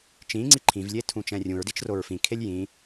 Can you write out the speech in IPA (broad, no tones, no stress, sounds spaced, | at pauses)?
t͡ʃ ĩ ŋ͡ǀ i ǃʰ ĩ v lʲ e tʰ ũ t͡ʃ ɛ̃ rʲ ũ ɹ d i t͡ʃ r o ɹ f ĩ kʰ e lʲ j ĩ